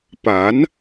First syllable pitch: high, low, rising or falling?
rising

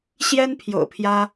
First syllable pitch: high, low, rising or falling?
high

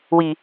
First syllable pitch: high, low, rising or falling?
low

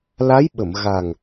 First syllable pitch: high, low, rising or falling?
rising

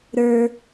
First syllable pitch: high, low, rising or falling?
low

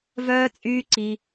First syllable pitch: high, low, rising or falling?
high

